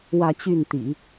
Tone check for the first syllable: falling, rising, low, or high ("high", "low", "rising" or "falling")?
falling